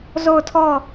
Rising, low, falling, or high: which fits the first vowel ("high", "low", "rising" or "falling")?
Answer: falling